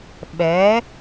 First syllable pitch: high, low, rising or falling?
rising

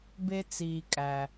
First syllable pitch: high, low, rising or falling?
low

